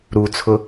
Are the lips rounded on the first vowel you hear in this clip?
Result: yes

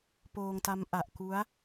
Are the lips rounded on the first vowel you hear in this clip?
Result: yes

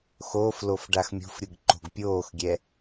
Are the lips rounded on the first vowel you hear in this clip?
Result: yes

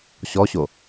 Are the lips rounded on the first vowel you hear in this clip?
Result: yes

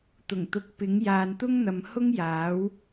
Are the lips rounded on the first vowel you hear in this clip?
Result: yes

